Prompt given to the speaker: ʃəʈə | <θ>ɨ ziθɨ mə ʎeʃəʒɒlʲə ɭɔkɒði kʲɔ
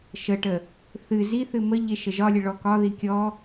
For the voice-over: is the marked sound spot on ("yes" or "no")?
yes